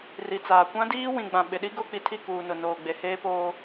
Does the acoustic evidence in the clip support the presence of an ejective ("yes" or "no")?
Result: no